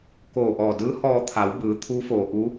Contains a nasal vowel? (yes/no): no